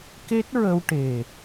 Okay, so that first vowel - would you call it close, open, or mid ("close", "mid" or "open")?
mid